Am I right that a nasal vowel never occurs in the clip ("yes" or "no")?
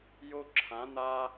no